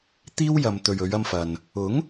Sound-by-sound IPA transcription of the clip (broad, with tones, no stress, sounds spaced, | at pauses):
t̪ iː˥ w j ɐ˨ m t̪ ɵ˨ ɥ ɵ˨˧ ɥ ɐ˧ m f ɐ˨ n | ʊ˨˥ ŋ